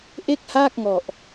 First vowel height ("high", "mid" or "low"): mid